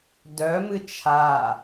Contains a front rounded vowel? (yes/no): yes